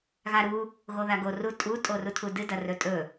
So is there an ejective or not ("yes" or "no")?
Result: yes